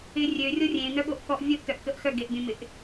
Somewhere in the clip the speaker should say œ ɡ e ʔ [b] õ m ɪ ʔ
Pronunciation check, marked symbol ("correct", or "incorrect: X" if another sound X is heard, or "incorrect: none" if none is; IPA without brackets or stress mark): incorrect: bʲ